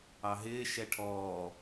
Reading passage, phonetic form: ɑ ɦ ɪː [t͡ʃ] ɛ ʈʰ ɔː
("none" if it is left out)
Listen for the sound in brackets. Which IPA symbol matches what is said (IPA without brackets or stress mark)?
ʃ